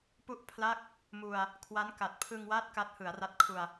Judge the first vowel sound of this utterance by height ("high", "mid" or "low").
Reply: high